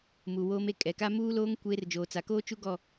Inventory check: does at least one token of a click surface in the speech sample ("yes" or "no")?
no